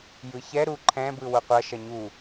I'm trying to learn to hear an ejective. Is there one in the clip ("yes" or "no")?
no